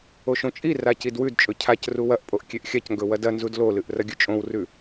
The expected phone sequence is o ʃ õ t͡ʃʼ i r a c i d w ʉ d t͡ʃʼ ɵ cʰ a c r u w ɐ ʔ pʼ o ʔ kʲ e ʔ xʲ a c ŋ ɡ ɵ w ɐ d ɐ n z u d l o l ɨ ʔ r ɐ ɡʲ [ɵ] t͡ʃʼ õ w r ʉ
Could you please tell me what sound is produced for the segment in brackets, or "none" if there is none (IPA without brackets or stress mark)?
ɵ